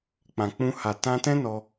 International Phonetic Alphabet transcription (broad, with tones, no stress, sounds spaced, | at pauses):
k͡p ã˨ k͡p ũ˧ h a˨ t ã˧ t ɛ̃˦ n ɔ˧